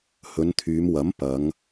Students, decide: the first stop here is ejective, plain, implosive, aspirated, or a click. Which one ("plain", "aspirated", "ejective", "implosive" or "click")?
aspirated